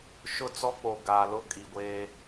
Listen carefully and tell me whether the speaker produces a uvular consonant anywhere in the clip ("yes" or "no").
no